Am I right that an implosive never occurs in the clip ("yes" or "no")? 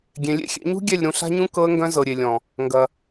yes